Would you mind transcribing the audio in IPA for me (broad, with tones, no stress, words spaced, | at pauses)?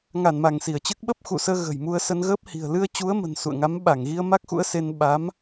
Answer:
ŋa˧˩nma˧˩ŋ si˧˩ə̯t͡ɕɨ˦˥k̚ ɓə˦˥p̚xṵ˧˨səː˧ ɣə̤˨˩jmu˧ə̯sə˧n ɣəː˦˥p̚hi̤˨˩ə̯ lɨ˧ə̯t͡ɕu˨˦ə̯mə̤˨˩n sṵ˧˨ə̯ŋa˨˦m ɓa˧˩ŋɣi˧ə̯ma˦˥k̚xṵ˧˥ə̯ se˧n ɓa˨˦m